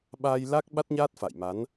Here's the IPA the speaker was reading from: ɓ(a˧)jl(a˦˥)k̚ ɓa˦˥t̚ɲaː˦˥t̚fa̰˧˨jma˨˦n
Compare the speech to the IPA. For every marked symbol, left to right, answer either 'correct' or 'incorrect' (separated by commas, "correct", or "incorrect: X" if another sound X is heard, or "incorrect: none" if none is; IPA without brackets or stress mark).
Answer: correct, correct